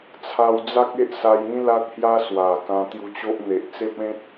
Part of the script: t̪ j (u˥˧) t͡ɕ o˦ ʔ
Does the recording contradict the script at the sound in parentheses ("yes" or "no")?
yes